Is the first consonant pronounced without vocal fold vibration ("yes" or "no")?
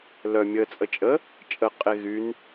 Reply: no